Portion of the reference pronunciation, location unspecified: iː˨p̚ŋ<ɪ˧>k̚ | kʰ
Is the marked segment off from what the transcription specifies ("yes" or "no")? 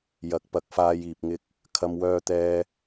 no